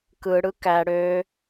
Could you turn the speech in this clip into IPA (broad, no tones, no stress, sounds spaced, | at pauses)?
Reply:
k ɯ ɽ ɯ k æ ɽ ø